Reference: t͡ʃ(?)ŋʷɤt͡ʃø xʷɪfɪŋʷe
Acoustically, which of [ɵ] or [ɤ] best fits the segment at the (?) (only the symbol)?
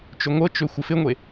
ɵ